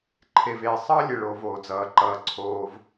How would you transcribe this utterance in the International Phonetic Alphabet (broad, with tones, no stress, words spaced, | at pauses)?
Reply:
ǃʰe˩veː˩ sˤʌː˥lʲe˩ɭ o˩ voː˩d͡zʌː˩ǃʌː˩ ǀʰoː˩v